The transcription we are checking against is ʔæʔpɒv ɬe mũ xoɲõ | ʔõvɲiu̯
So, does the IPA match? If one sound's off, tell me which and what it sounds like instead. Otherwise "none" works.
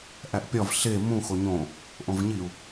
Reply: p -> pʲ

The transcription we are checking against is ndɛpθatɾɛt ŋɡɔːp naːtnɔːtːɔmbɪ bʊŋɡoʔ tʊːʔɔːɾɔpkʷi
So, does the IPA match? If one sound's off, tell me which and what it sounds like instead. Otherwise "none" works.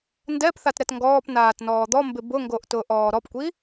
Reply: tː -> d̪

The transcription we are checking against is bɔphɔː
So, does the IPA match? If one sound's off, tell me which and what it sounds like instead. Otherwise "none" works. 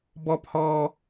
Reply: none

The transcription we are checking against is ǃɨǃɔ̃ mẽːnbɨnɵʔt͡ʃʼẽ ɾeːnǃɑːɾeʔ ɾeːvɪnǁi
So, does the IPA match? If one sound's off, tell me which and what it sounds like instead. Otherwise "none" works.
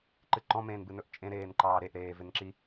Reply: none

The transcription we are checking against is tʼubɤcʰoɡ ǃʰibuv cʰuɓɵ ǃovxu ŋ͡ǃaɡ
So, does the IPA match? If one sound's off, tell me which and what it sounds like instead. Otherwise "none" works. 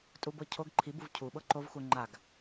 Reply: ɵ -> ɤ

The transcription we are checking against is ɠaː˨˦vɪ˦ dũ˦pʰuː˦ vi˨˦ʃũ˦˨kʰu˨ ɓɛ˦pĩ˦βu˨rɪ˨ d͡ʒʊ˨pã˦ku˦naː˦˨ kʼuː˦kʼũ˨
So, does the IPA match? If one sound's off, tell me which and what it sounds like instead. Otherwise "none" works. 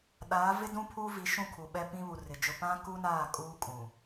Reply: ɠ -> ɗ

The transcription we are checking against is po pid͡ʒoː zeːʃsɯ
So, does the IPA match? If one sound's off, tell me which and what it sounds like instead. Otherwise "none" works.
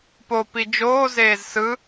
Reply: ʃ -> z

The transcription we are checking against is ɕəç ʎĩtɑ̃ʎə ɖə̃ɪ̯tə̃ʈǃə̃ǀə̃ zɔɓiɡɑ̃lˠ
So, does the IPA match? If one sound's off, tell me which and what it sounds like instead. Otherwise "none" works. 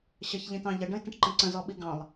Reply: none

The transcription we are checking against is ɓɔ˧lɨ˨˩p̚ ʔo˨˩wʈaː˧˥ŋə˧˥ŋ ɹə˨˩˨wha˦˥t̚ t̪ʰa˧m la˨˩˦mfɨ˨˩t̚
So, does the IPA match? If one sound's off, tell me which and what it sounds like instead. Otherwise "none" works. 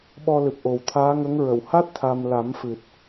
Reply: ʈ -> t̪ʰ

